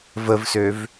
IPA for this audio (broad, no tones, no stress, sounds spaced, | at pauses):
v ə v s ø v